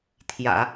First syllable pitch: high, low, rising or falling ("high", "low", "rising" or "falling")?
low